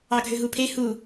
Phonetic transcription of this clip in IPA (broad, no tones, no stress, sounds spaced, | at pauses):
ɑ ɡʱ ø ɦ u pʰ e h u